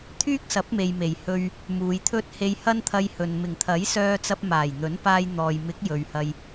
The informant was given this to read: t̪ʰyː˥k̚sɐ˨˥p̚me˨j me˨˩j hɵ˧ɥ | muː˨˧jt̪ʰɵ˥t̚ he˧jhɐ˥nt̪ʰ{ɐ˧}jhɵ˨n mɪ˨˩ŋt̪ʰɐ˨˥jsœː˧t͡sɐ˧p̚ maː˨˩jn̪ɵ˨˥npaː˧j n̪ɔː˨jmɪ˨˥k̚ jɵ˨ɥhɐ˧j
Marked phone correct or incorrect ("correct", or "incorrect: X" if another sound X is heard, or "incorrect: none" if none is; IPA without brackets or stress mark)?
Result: correct